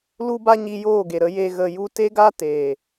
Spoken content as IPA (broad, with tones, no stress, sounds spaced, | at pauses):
l u˦ b a˦ ɲ i˧ j oː˦˨ ɡ e˨ ɾ ə˨˦ j e˧ ɣ ə˨ j u˧ t e˦ ɡ a˦ t eː˨